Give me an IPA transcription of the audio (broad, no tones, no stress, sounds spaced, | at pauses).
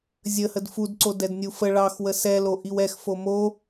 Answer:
zʲ ə h ə d f u d ǀ o d ɛ d nʲ u f ə ɭ ɑ x w ə s ɛ l o ʔ i w ɛ x f o m o